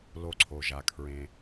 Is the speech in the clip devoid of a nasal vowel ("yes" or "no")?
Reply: no